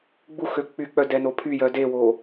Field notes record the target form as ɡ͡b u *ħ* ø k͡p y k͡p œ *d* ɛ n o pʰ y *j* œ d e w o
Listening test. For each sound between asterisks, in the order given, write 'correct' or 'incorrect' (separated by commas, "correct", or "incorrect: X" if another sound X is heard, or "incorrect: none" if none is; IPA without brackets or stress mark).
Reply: incorrect: x, correct, correct